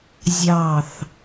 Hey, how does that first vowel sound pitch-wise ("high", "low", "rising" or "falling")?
falling